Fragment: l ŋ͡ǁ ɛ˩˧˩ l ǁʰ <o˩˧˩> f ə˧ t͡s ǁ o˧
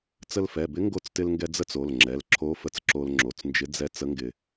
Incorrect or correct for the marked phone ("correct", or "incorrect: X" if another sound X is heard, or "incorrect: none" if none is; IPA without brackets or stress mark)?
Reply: incorrect: o˧˥